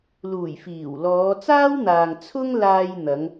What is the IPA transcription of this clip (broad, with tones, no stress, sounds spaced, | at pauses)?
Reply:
l uː˨˩ j f iː˨˩ w l ɔː˨˧ t͡s aː˥ w n̪ aː˨ ŋ t͡sʰ ʊ˥ ŋ l aː˧ j n̪ ɐ˨˧ ŋ